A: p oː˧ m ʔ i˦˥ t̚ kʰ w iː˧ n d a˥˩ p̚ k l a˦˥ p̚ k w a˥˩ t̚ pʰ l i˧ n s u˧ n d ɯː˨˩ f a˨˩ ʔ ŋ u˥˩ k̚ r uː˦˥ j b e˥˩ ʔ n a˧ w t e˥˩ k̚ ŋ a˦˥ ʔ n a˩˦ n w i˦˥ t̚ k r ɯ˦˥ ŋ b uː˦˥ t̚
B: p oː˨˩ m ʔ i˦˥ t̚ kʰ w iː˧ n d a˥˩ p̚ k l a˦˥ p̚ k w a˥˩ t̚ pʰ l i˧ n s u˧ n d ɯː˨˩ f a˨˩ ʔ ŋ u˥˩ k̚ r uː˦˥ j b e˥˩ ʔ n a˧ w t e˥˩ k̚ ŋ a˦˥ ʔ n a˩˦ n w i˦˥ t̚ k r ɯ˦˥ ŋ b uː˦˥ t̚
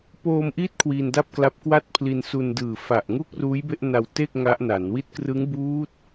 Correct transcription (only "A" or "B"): A